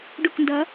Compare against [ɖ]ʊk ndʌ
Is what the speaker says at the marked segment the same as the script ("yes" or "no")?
yes